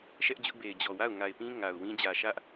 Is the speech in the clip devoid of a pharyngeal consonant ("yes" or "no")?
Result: yes